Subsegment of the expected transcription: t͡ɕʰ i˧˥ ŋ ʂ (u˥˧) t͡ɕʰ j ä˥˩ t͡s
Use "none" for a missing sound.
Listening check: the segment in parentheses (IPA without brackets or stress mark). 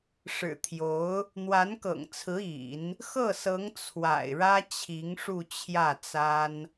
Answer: u˥˧